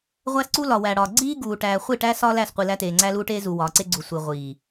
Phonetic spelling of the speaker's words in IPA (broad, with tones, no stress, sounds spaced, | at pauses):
ʁʷ æ˦ s ǀ u˦ l ɒ˨ w æ˨ ɽ ɒ˨ ɡ͡ǀ iː˦ ɡ uː˨ ʈ æː˨ χʷ i˦˨ ʈ æ˦ s ɒː˦ l æ˦˨ s qʷ i˨ l æ˦ t eː˨ ŋ͡ǀ æ˦ l uː˦ ʈ eː˦ z u˨ w ɒː˨ ǀ e˦ ɡ͡ǀ u˨ sʷ i˨ ʁʷ iː˨